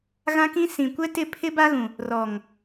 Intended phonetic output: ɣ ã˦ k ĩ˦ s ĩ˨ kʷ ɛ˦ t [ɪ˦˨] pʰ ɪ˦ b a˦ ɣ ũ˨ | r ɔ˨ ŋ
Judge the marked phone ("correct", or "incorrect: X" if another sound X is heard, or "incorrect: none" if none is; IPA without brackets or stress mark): correct